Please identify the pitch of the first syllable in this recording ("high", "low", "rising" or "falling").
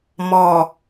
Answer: low